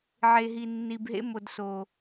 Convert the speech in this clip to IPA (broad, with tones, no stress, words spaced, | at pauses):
ʕe˨ ɦi˨nːi˨bɦḛ˦mo˨d so˨